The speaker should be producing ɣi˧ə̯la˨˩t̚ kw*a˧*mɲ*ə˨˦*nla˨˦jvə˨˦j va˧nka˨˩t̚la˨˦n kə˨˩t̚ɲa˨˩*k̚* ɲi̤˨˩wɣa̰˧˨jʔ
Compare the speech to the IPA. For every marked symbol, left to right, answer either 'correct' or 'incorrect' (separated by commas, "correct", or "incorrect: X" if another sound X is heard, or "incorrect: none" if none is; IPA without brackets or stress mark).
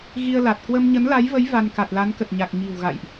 incorrect: ə˧, correct, correct